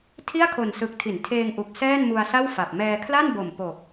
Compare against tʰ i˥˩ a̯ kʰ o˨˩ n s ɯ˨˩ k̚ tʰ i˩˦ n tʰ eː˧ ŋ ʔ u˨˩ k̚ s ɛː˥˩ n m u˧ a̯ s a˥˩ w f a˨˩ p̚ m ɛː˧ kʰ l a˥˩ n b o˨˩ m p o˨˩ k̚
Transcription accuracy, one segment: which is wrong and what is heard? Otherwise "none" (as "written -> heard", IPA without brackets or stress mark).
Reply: none